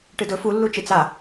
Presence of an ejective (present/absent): absent